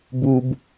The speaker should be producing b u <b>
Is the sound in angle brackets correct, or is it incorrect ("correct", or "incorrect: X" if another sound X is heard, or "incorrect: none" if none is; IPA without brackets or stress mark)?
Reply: correct